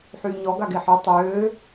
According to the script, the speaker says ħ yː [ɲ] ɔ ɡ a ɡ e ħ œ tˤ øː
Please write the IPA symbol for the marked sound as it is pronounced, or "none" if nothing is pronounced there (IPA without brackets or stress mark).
ɲ